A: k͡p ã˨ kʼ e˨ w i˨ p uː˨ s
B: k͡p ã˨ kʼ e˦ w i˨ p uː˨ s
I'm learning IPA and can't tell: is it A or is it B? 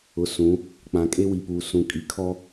B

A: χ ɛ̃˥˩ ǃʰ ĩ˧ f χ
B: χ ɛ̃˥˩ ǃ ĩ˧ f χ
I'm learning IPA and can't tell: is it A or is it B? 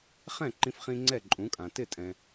B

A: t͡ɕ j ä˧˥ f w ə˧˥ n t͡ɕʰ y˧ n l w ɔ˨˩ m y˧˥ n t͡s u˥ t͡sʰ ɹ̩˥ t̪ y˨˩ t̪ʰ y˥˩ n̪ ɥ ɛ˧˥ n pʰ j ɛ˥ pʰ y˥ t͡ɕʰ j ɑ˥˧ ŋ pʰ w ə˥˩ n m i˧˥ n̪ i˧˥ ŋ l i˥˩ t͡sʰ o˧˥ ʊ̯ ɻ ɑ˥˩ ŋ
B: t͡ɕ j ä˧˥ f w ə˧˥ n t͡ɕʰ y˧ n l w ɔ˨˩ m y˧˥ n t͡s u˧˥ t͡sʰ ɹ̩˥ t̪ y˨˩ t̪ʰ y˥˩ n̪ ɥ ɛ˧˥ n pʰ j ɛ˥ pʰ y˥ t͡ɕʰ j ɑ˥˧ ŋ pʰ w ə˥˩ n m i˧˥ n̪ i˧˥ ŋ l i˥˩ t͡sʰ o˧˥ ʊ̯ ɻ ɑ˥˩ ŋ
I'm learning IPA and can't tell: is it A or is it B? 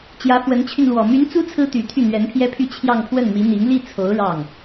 A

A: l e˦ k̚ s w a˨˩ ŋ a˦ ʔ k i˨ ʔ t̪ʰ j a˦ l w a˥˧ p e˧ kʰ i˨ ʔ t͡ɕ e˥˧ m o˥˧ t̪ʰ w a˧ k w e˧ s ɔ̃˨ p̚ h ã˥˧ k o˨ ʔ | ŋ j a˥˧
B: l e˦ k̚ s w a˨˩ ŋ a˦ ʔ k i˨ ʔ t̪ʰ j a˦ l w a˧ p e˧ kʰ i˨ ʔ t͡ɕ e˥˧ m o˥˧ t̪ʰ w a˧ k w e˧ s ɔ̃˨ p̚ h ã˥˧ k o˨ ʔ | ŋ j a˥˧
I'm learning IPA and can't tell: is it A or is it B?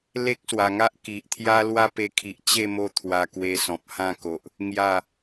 A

